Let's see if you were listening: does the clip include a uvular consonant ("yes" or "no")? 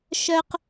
yes